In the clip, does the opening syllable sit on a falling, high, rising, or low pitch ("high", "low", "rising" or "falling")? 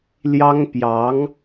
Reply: high